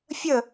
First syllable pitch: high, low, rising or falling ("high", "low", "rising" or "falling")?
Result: falling